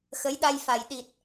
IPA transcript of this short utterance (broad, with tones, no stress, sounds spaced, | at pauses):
x ə˨˦ j ɗ a˧ j f a˨˩ j ɗ i˨˩ t̚